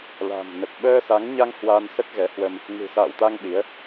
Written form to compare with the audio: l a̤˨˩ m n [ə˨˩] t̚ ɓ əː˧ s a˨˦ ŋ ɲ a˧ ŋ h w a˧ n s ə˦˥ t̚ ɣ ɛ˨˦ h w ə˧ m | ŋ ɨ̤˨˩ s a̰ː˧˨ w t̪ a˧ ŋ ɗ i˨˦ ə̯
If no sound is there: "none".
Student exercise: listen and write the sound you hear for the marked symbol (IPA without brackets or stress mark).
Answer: ə˨˩